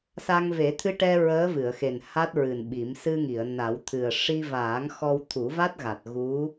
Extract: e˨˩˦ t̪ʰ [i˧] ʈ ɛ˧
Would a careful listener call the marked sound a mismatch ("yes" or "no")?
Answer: yes